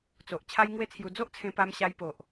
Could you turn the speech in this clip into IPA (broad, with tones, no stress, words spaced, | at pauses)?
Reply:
t͡so˨ʔ t͡ɕʰa˦jŋwe˦t͡sʰju˧ d͡zo˦ʔt͡sʰẽ˧pa˧m ɕa˧jpo˨ʔ